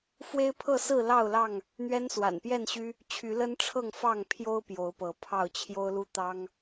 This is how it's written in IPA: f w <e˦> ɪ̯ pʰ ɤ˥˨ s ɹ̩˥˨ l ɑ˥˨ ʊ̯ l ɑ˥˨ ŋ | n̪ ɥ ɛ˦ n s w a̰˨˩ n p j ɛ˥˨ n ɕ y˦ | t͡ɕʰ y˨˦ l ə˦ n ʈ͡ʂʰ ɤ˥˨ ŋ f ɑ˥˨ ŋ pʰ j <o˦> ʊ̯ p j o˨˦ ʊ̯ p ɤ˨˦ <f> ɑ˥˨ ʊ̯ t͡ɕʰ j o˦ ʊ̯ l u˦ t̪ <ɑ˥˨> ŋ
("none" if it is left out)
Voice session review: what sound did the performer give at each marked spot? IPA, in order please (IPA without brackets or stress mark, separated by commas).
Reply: e˦, o˦, pʰ, ɑ˦